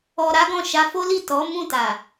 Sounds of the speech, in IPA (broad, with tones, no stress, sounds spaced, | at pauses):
ɔ˧ ɾ a˦ ɡ ɔ̃˦˨ ʃ a˧ f o˦ l i˦˨ t ɔ˨˦ m ũ˦˨ t a˨